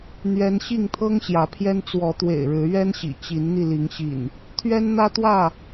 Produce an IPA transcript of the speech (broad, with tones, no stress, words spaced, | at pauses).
n̪ɥɛ˦n ɕi˥˨ŋt̪ʰɤ˦ŋ ɕjä˨˦pʰjɛ˦n t͡swɔ˨˦t̪wḛ˨˩ɪ̯ ɻɻ̩˨˦ɥɛ˦nɕḭ˨˩ t͡ɕi˨˦nn̪i˧li˨˦ŋɕḭ˨˩n | t̪ʰɥɛ˦nn̪ä˦t̪wä˥˨